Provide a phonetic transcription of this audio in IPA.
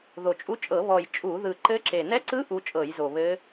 ð o˨˩ t͡ʃʼ u˧˥ t͡ʃʼ ɤ˧˩˧ β ɔ˨˩ j t͡ʃʼ u˧˩˧ ð ɯ˨˩ ǃ ɘ˧˥ ǁ e˨˩ n ɛ˧˥ ǀ ɯ˧˥ ʔ u˧˥ t͡ʃʼ ɤ˧˩˧ j z o˨˩ β ɘ˧˥

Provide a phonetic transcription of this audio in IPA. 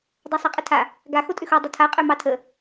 dˤ ɑ sˤ ɑ qʼ ə tʰ a | ɡ a x o tʼ ʏ x o dˤ ə tʰ a qʼ ø m ɑ tʰ ə

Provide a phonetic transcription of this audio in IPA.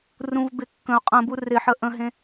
r ũ v b ɪ kː ə̃ ʊ̯ qʼ ə̃ b u r ɪ ħ ə ʔ ə̃ ɦ ẽ

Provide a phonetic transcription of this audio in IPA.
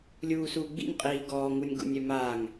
lʲ uː s uː ɡ͡b ḭ nʲ qʼ iː ɡ ɔː ŋ u nʲ ɡ ṵ nʲ œ m a ŋ

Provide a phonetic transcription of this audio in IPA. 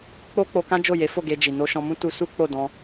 k͡p o˦ k͡p o˧ k ã˦ d͡ʒ o˦˨ j e˨˦ f o˦˨ ɡ e˧ d͡ʒ i˨ n o˧ ʃ ɔ̃˧ m ũ˦ t u˧ s u˦ k͡p o˦˨ d ɔ̃˧

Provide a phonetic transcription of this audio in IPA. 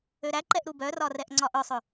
ø ɾ æ ǃ ɛ ʔ ɾ u b œ r ɒ r ɛ ʔ ŋ͡ǀ ɒ ʔ œ sˤ ø

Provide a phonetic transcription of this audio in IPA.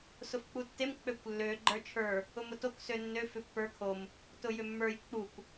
s ʊ f k͡p u tː e m k͡p ø kʷ lː ø ɡ͡ǃ ə˞ t͡ʃʰ ə˞ | ʊ m ʊ t o k s ø nː ø f ʏ pː ə˞ kʰ o m | t ʊ j ʏ mː ə˞ j k͡p u kʷ

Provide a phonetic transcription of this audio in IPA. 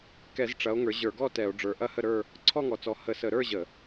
k ɛ˧˩˧ z ʈ͡ʂ ɐ˨˦ o̯ ŋ ə˞˨˦ ʑ ə˞˧˩˧ ɡ ɔ˥˧ t ɛ˧˩˧ o̯ ɖ͡ʐ ə˞˨˦ ʔ ɐ˥˧ h ə˥˧ ɾ ə˞˥˧ | ǀʰ ɔ˥˧ ŋ ɔ˨˦ t͡s ɔ˨˦ h ə˧˩˧ s ə˧˩˧ ɾ ə˞˥˧ ʑ ə˧˩˧

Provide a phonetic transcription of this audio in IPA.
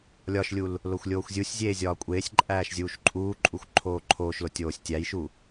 lʲ ɒ ʃ lʲ u l | l o xʷ lʲ oː xʷ zʲ u sʲ zʲ eː zʲ ɒː kʷʼ eː sʲ ǃʼ æː ʃ zʲ uː ʃ ǃʼ uː ǃʼ u xʷ ǃʰ oː ǃʰ oː ʃ l o tʲ oː sʲ tʲ æ j ʃ u

